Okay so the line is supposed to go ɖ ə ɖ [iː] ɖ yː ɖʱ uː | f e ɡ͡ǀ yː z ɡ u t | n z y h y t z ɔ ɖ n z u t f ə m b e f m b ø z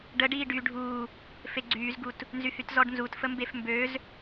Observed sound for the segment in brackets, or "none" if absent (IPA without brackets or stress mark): iː